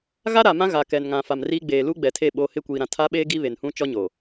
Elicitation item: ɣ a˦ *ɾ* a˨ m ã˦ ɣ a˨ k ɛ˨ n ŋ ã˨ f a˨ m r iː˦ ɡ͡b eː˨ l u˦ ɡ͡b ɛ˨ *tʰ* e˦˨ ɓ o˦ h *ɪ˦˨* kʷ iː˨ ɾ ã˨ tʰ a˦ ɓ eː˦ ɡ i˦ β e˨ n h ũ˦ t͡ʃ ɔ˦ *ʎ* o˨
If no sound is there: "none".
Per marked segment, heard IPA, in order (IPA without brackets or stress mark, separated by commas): ɾ, tʰ, ɪ˦˨, ɲ